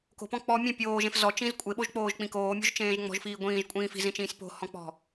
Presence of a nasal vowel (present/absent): present